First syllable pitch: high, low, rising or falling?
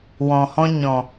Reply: low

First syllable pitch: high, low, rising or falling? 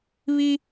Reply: high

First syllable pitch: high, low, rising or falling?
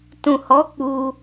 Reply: low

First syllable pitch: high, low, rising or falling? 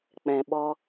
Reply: low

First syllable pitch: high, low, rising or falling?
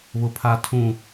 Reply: low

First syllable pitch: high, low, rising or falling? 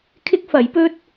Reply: high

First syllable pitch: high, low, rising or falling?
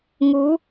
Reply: rising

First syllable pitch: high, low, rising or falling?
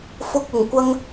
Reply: high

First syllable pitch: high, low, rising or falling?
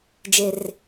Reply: low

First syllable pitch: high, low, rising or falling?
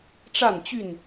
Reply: falling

